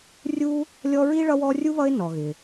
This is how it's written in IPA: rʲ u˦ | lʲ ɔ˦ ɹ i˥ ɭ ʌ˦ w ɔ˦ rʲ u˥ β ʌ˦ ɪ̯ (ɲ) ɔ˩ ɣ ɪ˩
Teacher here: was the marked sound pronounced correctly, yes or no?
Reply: no